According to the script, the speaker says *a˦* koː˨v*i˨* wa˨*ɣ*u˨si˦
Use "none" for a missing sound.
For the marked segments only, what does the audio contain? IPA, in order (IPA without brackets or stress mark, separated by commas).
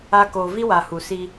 a˦, i˦, h